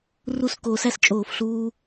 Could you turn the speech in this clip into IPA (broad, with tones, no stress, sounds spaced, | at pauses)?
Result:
r u˥˧ s k oː˧ s æ˥ s t͡ʃʼ oː˥˧ f ɬ uː˥